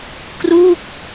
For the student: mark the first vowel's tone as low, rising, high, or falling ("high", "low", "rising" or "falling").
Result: falling